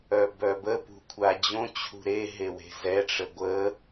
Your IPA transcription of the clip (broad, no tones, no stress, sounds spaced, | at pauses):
œ b œ b ə p ṳ kʷʰ a d͡ʑ õ t͡ɕʰ ṳ ɾ e ɦ e w e̤ z ɛ ʈ͡ʂ ə ɡʷ ə